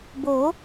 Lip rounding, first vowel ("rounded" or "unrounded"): rounded